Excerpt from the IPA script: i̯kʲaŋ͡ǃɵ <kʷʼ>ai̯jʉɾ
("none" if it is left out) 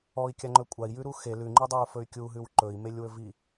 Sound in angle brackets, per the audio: kʷʼ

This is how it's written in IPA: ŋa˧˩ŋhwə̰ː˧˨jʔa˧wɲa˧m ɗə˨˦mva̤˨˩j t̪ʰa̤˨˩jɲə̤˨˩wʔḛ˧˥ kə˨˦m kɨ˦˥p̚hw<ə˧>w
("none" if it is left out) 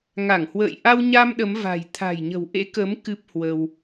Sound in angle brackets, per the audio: ə˧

